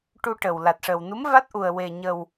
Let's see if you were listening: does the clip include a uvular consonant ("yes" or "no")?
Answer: no